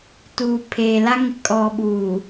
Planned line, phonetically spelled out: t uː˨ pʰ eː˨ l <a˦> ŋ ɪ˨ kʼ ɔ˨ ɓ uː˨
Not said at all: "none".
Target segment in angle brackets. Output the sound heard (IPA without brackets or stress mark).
a˦